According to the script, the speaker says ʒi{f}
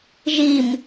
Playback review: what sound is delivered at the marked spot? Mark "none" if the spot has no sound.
m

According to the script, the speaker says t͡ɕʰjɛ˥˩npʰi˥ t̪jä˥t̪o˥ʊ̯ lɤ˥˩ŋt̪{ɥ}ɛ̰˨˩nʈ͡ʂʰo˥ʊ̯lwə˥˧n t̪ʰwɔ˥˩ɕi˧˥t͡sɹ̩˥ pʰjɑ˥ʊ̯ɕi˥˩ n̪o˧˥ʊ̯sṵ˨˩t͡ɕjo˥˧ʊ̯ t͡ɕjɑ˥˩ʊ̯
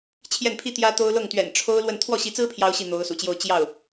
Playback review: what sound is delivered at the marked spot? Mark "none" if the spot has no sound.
ɥ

